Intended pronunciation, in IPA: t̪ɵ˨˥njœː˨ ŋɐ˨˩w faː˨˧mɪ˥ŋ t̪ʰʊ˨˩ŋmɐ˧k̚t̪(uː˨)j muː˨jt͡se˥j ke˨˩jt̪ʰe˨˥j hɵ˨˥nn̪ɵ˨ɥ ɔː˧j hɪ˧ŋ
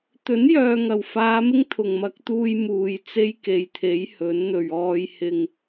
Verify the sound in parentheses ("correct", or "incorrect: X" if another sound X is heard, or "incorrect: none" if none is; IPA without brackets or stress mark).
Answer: incorrect: uː˧